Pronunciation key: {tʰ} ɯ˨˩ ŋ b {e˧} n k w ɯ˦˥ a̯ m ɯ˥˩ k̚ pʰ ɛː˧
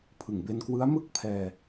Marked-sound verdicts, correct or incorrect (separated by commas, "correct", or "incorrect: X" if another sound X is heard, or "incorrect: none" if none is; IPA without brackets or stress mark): incorrect: pʰ, correct